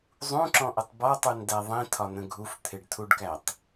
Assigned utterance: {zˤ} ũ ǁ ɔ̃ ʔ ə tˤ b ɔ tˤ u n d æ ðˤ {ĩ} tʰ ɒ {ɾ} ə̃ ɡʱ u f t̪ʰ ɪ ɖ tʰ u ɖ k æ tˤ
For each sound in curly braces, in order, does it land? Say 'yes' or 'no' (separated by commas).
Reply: yes, yes, no